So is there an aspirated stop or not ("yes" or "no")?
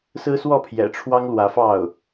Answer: yes